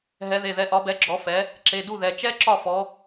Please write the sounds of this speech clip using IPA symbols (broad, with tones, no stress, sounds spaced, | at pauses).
ɦ ɛ˨˦ ð e˩˧˩ ð ɛ˨˦ ʔ ɒ˨˦ b ɛ˨˦ ɡ͡ǁ ɔ˨˦ f ɛ˨˦ | ǁ e˩˧˩ d u˥˩ ð ɛ˩˧˩ t͡ʃ ɛ˦˥ ǁ ɒ˥˩ f ɔ˨˦